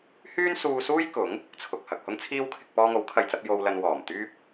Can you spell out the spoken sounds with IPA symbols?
h yː˥ n s uː˧ s uː˥ j k ʊ˨˥ ŋ | t͡sʰ ʊ˨ k̚ h ɐ˨ k̚ h ʊ˥ ŋ t͡sʰ iː˥ w kʰ ɪ˧ k̚ p ɔː˧ ŋ o˨˥ w kʰ ɐ˨ j t͡s ɐ˧ p̚ j o˧ w l ɐ˧ n w ɔː˨˩ m t̪ yː˥ p̚

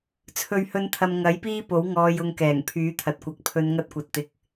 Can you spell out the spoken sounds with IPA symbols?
t͡sʰ ɵ˨˧ ɥ h ɵ˨˧ n t̪ʰ ɐ˨ m ŋ ɐ˨˥ j p iː˥ p o˨˥ w ŋ ɔː˨ j ʊ˨ ŋ k ɛː˨˩ ŋ pʰ yː˨˥ t̪ʰ ɐ˨ t̚ kʷ ɐ˨˥ k̚ pʰ ɵ˨˧ n ŋ ɐ˧ t̚ kʷ ɐ˨ t̚ t̪ ɪ˨˥ k̚

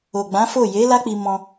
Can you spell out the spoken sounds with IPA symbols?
o˨ ɡ͡b ã˨˦ f o˦˨ j e˨˦ l a˦ k͡p i˧ m ɔ̃˧

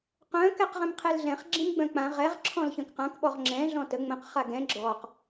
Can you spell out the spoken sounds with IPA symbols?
q œ̃ k ɛ q ʁ ɛ̃ m qʰ ɛ l ɮ ɛ̃ χ ɡ͡ǁ ĩ m ɡ͡b œ̃ k͡p ã ʁ ɛ ʁ ǁʰ ɔ̃ l ç œ̃ k q ã k ɓ ɔ ʁ ŋ͡ǁ ɛ̃ ɮ ɔ̃ t ə ŋ͡m ə̃ q χ a ɡ ɛ̃ ɡ͡ǁ ɔ q

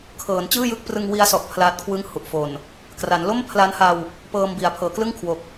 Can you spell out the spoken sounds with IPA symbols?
kʰ ɤː˩˦ n t͡ɕ ɯː˥˩ j ɯ˦˥ k̚ p r ɯ˧ ŋ w i˦˥ a̯ s ɔ˨˩ ʔ pʰ l aː˦˥ t̚ kʰ w ɯ˥˩ ŋ h u˨˩ ʔ f o˨˩ n | k r a˩˦ n l o˥˩ m pʰ l a˦˥ n h a˧ w | p ɤː˧ m b i˩˦ a̯ pʰ ɤː˩˦ k l ɯ˥˩ ŋ kʰ w o˨˩ k̚

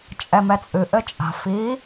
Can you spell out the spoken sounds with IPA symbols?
t͡ʃʼ ɛ m ɛ t͡sʼ ɨ ʔ ɘ t͡ʃʼ a̤ f i

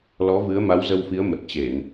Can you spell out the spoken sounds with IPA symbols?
l ɔ˨˦ v ɨ˨˦ ə̯ m a˨˦ w z ə˧ w f i˨˦ ə̯ m ə˨˩ t̚ t͡ɕ e˧˩˨ n

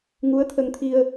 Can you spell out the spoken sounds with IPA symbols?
ŋ u˧˥ ə̯ t̪ʰ ə˧ ŋ t̪ʰ i˧ ə̯

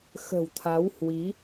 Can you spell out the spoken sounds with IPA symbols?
x ə̤˨˩ w t̪ʰ a˨˦ w h w i˨˦

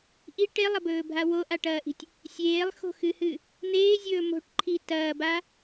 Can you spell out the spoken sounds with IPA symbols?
ʔ i ʈ e lˠ ɐ b ɵː bʱ a w o ʔ a ʈ ɐː ʔ i̤ tʲ | sʲ eː lˠ x o̤ x ɨ h ɨ | n̪ eː zʲ ɵː m o̤ ʈ ǃʰ i t ɐː b a

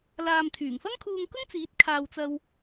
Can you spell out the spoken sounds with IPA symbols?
l aː˨ m t̪ʰ yː˨˩ ŋ f ɐ˥ ŋ kʰ uː˧ ŋ k ʊ˥ ŋ t͡s iː˨˥ t̚ kʰ aː˨ w t͡s ɐ˧ w

